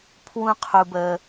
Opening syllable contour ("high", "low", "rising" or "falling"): high